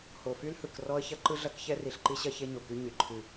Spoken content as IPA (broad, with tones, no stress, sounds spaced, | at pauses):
h o˨ f y˦ l h ɯ˨ k r ɔ˦ ə̯ ç ɐ˦ ǃ ɯ˦ ɮ ɐ˦ k ç ɛ˦ r i˨ ɬ ǃ i˦ ɕ ɐ˦ ç e˦ ɲ o˨ k y˦ ɲ y˨ ǃʰ ɨ˦˨